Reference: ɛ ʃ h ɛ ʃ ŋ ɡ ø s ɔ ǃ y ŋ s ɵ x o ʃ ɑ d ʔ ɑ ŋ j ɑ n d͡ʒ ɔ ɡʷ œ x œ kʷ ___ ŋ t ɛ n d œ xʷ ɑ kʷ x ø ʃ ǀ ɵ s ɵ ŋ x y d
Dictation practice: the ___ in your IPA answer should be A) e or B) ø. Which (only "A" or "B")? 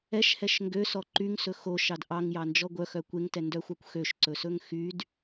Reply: A